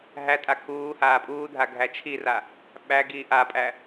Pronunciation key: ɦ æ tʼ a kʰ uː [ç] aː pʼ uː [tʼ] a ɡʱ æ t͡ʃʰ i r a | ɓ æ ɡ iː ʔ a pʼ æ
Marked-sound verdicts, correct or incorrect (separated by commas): incorrect, incorrect